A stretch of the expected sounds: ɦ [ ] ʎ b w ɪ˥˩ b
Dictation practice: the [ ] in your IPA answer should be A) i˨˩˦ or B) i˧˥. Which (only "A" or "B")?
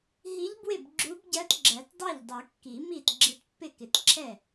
B